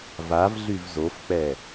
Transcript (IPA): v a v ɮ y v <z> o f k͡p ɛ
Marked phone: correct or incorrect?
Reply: correct